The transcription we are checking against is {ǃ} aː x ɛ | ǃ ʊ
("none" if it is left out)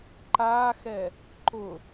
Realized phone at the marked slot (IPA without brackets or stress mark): ǃ